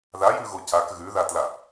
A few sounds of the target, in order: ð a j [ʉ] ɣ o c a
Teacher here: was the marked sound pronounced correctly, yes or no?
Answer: yes